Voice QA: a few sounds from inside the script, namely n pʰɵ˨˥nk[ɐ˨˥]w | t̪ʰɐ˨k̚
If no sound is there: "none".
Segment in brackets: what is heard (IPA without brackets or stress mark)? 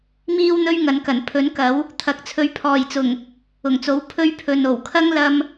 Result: ɐ˨˥